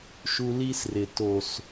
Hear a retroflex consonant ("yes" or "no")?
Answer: no